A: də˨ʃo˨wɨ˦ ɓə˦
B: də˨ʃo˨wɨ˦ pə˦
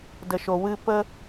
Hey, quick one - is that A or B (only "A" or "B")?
B